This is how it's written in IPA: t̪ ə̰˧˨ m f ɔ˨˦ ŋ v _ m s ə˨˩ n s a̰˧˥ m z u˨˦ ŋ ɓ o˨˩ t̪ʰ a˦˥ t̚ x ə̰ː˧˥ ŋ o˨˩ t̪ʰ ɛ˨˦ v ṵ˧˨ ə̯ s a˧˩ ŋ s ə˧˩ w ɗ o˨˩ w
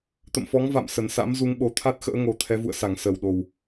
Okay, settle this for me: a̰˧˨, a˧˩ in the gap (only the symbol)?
a̰˧˨